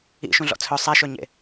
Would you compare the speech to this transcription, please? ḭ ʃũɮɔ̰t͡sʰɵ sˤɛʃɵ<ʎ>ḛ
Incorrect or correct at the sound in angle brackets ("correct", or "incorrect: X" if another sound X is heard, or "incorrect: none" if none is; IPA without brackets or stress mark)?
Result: incorrect: ɲ